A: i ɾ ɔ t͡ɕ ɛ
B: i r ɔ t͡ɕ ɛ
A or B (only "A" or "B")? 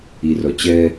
B